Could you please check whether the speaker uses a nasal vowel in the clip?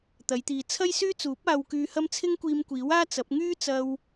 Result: no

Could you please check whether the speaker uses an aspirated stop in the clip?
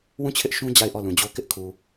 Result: yes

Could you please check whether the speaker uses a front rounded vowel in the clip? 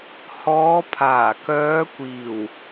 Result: yes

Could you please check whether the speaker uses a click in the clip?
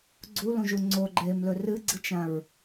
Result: yes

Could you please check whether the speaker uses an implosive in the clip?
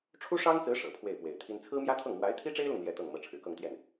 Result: no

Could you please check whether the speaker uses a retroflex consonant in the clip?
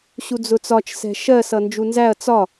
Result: no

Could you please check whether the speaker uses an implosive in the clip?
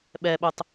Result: yes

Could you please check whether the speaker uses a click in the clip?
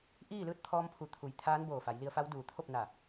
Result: no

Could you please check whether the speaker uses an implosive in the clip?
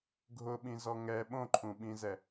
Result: yes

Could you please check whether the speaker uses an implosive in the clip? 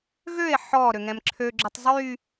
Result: no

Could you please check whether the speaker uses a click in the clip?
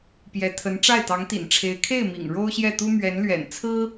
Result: no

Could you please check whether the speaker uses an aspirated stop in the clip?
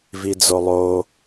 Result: no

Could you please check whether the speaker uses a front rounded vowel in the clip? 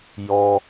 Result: no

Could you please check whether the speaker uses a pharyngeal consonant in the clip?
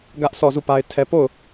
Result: no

